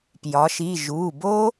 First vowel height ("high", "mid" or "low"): low